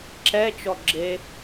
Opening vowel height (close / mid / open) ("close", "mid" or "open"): mid